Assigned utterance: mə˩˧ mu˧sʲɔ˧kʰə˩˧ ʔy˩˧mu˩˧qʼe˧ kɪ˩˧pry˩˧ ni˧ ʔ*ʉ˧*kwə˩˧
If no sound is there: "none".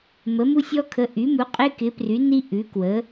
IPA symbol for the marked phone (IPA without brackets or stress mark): ʉ˩˧